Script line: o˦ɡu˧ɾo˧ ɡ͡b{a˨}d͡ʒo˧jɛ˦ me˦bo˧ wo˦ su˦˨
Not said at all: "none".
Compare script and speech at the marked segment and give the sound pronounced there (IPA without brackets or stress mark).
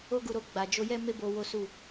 a˨